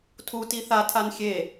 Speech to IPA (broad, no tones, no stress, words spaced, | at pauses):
tʰuti θatʰan xʲe